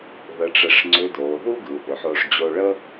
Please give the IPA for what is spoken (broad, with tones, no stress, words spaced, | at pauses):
ðə˧˥ʈ͡ʂə˧ʂ ŋ͡ǀʏ˧˥doː˩˧ ðu˥ ɡɯ˩˧ʔʏ˩˧ħoː˧ʂ d͡ʑo˧ɭə˥